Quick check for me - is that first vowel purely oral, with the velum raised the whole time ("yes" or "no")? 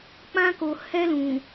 no